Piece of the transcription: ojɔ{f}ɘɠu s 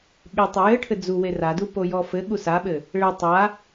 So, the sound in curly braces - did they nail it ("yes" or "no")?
yes